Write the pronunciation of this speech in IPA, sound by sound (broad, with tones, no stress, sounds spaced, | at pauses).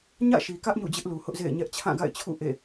ɲ ä̰˦˨ ʃ i˨ k ä˦ ʔ ɲ ṵ˦˨ d͡ʑ ɪ˦ ʔ l u˨ h ʊ˦ ʔ z ḛ˦˨ ɪ̯ ɲ ɛ˦ ʔ t͡ɕʰ ã˦˨ ɡ a̰˦˨ ɪ̯ t͡ɕʰ ṵ˦˨ ʔ ḛ˦˨